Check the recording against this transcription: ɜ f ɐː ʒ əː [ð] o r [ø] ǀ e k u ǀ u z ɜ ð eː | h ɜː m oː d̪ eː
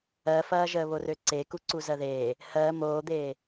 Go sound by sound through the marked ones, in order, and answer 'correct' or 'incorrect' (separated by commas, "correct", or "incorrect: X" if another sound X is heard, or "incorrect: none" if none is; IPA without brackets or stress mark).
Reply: incorrect: β, correct